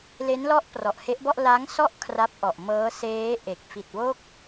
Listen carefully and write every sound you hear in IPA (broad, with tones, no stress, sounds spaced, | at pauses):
l e˦˥ n l ɔ˦˥ ʔ p r ɔ˨˩ ʔ h e˦˥ ʔ b ɔ˥˩ ʔ l a˦˥ ŋ s ɔ˥˩ ʔ kʰ r a˦˥ p̚ ʔ ɔ˨˩ ʔ m ɤː˦˥ s eː˦˥ ʔ e˨˩ k̚ f i˨˩ t̚ w o˦˥ k̚